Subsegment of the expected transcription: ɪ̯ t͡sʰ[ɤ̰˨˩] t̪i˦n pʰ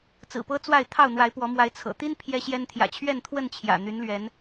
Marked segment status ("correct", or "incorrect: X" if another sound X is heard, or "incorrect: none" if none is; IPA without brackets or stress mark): correct